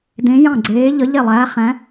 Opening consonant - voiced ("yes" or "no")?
yes